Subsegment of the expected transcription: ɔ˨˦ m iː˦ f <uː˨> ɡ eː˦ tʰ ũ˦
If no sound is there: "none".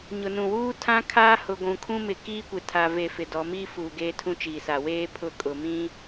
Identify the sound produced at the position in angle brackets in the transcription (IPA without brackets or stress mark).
uː˨